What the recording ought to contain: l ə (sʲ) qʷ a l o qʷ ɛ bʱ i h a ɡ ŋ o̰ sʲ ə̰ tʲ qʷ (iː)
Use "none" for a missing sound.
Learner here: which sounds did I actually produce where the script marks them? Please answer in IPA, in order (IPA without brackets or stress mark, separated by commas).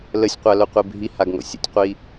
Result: sʲ, i